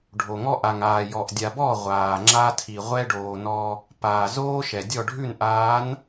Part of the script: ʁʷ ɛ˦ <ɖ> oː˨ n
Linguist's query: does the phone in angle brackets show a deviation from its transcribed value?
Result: no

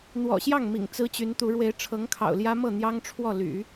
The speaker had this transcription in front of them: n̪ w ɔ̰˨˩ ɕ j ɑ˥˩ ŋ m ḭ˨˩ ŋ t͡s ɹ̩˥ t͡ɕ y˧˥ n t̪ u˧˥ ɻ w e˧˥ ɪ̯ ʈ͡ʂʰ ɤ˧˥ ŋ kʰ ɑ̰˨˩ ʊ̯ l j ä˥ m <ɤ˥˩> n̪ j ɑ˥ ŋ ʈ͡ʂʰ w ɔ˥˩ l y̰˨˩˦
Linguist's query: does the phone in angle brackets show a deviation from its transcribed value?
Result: no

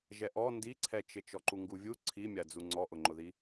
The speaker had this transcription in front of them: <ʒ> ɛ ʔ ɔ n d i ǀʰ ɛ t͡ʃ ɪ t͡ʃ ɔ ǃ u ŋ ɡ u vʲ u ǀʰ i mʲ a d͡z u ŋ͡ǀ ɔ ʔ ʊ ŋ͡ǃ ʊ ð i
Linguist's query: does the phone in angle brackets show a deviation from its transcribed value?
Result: no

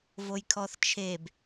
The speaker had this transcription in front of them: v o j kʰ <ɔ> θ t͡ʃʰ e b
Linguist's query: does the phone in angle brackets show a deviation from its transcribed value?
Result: no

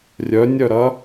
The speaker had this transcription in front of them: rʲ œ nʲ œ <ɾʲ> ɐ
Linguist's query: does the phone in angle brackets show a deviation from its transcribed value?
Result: yes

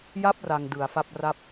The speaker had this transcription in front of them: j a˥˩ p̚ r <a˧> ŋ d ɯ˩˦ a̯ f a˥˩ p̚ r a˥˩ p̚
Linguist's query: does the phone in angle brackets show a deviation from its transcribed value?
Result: no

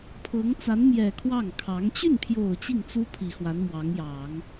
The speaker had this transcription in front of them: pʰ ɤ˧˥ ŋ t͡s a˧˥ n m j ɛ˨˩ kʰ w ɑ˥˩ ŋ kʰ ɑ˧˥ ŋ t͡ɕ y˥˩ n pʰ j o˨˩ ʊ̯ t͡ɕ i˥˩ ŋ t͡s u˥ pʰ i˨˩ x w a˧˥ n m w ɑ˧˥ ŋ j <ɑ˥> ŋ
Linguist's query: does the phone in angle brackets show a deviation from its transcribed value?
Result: yes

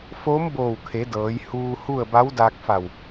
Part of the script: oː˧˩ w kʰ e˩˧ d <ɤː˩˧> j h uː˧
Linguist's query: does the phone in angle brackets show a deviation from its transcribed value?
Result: no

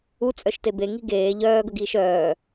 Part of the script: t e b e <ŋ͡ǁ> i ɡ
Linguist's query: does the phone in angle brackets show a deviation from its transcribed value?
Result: yes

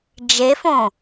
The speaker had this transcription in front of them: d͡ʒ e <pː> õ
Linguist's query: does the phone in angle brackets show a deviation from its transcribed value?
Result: yes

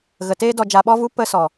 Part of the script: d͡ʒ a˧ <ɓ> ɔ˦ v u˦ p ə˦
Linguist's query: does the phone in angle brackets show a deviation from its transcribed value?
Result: no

